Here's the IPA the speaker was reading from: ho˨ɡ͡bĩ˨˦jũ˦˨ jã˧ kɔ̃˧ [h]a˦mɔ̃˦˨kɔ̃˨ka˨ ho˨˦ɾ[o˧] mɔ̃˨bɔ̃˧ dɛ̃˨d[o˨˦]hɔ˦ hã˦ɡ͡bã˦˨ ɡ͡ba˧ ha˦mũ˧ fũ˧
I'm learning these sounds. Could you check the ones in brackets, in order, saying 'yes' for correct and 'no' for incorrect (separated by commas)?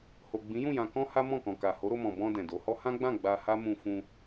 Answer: yes, yes, yes